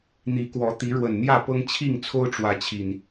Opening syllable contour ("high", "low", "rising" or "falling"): rising